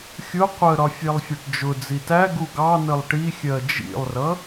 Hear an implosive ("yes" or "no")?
no